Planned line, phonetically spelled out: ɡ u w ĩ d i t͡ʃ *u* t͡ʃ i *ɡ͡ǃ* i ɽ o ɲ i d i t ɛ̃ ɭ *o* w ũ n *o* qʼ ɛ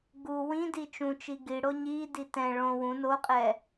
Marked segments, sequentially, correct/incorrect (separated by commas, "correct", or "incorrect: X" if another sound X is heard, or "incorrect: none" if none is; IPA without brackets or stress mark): incorrect: ũ, incorrect: ɡ, incorrect: õ, correct